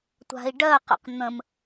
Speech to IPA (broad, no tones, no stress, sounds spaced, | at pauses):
tʷ a̤ i̯ ɖ ɜ q ə̰ q n̪ ə̃ m